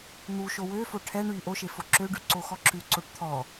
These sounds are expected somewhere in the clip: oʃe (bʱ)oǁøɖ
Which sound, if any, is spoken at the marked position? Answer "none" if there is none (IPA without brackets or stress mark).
f